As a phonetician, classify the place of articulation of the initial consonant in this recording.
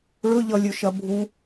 retroflex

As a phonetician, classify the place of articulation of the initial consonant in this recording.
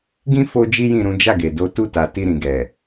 velar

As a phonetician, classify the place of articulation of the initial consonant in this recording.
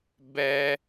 labial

